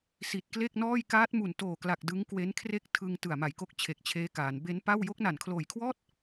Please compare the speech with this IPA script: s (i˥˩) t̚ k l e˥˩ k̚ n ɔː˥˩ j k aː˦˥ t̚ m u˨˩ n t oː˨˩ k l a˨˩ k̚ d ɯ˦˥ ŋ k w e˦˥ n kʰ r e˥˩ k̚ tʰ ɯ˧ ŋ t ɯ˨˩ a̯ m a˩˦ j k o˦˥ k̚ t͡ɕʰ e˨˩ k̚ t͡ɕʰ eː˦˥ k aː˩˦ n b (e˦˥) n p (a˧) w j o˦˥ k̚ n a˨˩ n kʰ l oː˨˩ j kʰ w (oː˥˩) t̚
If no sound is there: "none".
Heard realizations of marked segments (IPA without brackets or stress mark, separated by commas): i˨˩, e˦˥, a˥˩, ɔː˥˩